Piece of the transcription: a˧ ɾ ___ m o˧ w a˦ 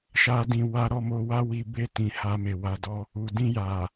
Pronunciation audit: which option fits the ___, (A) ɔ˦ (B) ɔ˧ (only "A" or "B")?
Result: B